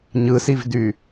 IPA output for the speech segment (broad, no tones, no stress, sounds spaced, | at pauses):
ɲ ɯ s i v d y